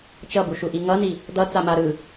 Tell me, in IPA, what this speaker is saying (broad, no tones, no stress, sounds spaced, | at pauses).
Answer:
t͡ʃ ʌ b u ʃ u ʔ i ŋ ʌ n i | d̪ ʌ t͡s a m a ɾ ɯ